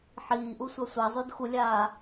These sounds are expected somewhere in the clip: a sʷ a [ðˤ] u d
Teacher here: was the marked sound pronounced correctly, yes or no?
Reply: no